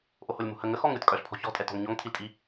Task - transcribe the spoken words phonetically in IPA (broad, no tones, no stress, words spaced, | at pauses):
ʔoholʲmṳhə ŋəxɔŋ ɾʲotkʼœɬpʰɔ̤ çɔ̤tʼɛtɔ̤ŋ ɲɔŋtʰiltʼi